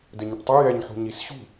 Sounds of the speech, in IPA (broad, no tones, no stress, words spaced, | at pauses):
dɘɲɐʈtˤɨ jɛɲ ħṳɲisɕṳ